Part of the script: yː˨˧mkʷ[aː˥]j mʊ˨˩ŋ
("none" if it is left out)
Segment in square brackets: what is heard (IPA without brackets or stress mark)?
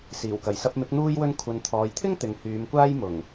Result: aː˥